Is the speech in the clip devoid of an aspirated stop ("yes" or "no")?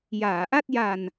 yes